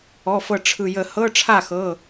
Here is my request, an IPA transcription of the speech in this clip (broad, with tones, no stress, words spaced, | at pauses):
ɔ˩˧˩fɤ˧˩ ʈ͡ʂʰɯ˧˩ jə˧˩˧hɤ˧˥˧ ʈ͡ʂʰa˥˩xɤ˩˧˩